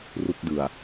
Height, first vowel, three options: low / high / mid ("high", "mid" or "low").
high